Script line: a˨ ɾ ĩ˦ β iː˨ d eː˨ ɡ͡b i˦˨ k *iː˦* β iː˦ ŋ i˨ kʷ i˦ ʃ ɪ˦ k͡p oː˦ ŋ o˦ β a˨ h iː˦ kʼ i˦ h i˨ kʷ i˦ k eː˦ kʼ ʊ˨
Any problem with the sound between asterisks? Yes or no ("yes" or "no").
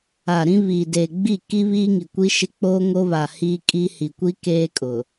yes